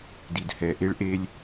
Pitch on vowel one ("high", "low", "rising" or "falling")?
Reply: low